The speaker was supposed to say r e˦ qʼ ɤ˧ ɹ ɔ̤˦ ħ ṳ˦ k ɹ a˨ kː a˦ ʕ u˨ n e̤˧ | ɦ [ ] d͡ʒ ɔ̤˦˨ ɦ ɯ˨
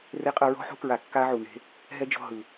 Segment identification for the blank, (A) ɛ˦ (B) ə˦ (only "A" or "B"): A